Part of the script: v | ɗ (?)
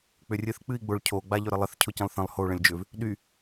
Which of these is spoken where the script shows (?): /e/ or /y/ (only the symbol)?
y